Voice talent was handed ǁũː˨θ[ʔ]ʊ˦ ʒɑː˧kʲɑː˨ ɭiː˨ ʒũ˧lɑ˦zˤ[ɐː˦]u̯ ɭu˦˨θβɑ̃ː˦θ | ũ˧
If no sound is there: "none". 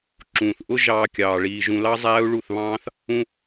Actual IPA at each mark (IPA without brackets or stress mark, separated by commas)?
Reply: ʔ, æː˦